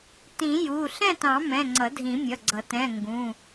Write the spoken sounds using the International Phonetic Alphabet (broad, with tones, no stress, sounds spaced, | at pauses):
t ĩ˨˩˦ j u˩˧˩ ɬ ɛ̃˥˨ t ɑ̃˨˩˦ m ɛ̃˩˧˩ ŋ͡ǀ ʌ˨˩˦ dʱ ĩ˨˩˦ mʲ ʌ˩˧˩ ɡ͡ǀ ʌ˨˩˦ t ɛ̃˩˧˩ ŋ ɡ ũ˩˧˩